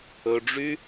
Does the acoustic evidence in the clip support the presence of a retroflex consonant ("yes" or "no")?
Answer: yes